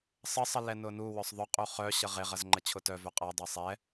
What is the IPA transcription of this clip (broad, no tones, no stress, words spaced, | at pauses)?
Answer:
sˤəsˤə lɛnʊnuwœsˤ ðˤʊqʼu χœ ɕəʁeʁɐz ŋ͡ǃət͡ɕʰʊtœvœ qʼadˤe sˤɛ